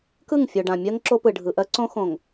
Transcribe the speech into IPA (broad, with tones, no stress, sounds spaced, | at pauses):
k ɯ˦˨ ŋ fʲ o˨ ɖ ã˨ mʲ ɜ˦ ŋ ǁ o˦ p ɯ˨ ɖʱ ɯ˨ ʔ ɜ˦ ǀ õ˦ x õ˨ ŋ